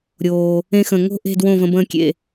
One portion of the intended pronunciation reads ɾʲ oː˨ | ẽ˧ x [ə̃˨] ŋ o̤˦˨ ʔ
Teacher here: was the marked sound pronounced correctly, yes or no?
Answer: yes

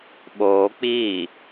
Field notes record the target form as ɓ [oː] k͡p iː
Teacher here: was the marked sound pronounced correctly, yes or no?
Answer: yes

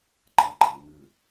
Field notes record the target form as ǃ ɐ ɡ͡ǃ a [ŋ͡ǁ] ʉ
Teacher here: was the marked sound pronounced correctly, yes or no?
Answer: no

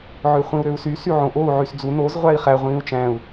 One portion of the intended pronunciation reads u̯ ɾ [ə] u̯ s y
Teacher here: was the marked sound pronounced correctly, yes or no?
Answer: no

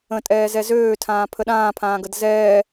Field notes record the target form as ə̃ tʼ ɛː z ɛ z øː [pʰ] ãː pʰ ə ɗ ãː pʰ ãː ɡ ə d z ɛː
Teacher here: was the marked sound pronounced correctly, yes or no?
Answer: no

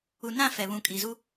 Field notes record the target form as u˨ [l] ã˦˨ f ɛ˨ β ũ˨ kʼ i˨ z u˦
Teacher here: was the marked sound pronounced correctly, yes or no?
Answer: no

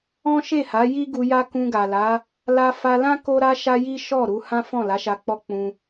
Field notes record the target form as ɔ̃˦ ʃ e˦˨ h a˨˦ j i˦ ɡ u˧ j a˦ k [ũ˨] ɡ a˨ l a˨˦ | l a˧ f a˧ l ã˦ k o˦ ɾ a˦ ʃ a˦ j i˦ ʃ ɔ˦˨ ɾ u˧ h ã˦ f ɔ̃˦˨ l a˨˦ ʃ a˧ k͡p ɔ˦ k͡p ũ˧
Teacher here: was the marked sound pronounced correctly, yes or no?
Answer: no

